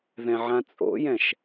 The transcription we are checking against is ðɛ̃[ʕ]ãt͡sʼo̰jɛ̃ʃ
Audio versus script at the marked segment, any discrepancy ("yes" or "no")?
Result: no